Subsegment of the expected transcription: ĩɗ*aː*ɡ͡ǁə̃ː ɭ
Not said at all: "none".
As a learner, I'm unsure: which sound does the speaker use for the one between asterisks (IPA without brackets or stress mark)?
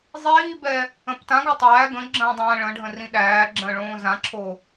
æː